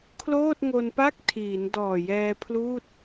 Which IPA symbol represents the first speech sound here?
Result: kʰ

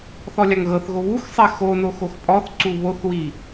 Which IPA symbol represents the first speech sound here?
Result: θ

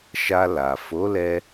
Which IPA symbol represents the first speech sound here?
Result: ʃ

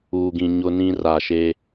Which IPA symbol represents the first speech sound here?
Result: uː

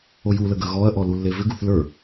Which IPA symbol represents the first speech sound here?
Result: o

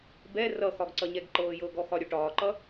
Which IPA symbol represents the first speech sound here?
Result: b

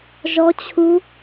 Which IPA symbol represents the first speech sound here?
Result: ʒ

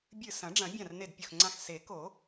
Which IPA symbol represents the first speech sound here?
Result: bʲ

